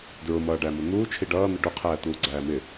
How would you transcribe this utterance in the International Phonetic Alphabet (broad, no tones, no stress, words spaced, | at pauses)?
dɹʊmʌːɖæmʊ n̪uː t͡ʃʰiɖʌːn̪ɪ ɖʊqʰæː t̪uːɡ͡ǀæːmɪ